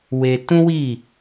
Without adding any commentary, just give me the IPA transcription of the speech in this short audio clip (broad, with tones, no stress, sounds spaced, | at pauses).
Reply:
w e˧ t ũ˦ w i˦˨